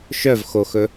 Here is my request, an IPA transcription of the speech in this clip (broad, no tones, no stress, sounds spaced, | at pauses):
ʃ œ v x o x ɵ